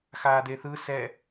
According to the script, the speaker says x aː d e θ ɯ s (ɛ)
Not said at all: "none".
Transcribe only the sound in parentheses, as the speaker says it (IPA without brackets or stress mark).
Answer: ɛ